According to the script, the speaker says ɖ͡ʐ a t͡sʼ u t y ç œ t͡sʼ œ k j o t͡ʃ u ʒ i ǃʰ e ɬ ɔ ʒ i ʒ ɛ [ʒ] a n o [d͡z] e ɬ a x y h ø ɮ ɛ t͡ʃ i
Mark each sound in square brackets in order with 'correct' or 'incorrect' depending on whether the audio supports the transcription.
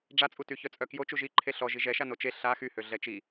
incorrect: ʃ, incorrect: t͡ʃ

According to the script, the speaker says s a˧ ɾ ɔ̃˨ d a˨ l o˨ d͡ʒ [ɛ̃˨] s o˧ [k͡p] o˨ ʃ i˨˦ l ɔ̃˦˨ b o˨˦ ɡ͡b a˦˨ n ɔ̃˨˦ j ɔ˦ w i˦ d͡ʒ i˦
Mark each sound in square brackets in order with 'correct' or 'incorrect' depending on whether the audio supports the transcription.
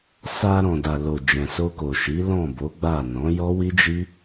correct, incorrect: k

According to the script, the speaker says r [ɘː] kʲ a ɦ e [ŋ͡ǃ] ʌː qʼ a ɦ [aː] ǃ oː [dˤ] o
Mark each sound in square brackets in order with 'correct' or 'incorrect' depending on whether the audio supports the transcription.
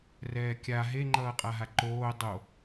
incorrect: ɛː, correct, incorrect: a, correct

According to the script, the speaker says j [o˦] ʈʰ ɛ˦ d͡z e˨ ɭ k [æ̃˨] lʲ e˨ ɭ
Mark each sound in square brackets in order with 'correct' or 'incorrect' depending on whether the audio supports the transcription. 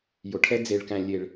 incorrect: o˨, correct

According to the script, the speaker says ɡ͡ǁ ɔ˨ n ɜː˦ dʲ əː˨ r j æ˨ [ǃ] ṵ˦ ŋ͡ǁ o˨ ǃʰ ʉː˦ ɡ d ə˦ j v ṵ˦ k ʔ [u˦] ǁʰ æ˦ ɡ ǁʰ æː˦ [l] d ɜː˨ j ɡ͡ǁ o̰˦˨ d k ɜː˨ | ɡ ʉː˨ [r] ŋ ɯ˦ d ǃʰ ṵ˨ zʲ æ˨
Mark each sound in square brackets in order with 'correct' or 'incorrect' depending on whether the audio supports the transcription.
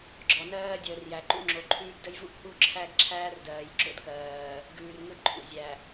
correct, correct, incorrect: r, correct

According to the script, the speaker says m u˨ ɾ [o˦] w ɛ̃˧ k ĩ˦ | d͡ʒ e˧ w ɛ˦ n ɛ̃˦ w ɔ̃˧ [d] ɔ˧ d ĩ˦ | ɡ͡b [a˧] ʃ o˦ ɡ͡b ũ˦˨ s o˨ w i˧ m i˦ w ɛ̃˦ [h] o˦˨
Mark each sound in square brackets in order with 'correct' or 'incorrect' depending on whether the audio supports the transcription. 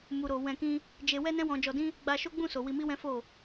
incorrect: o˨, incorrect: d͡ʒ, correct, incorrect: f

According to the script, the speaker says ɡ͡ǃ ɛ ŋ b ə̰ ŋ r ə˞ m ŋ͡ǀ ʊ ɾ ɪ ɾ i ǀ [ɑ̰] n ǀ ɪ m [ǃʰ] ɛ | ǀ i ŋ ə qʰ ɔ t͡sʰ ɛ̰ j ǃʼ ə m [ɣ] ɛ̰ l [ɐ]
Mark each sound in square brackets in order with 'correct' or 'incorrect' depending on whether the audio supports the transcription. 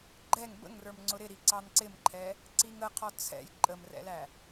incorrect: ɑ, correct, incorrect: r, incorrect: æ

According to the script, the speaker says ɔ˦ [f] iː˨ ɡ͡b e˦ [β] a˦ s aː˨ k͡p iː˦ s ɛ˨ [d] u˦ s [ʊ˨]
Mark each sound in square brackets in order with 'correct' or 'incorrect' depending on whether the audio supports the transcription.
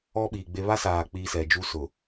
incorrect: ɓ, correct, incorrect: d͡ʒ, correct

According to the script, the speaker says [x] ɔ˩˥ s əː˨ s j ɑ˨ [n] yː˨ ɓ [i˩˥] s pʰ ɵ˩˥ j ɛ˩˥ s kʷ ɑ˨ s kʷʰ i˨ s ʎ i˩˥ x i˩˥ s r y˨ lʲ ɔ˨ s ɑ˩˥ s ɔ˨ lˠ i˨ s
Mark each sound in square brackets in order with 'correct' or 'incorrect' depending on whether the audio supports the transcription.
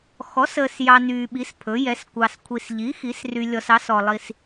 correct, correct, correct

